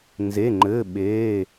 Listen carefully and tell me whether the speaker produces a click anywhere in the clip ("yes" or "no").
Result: yes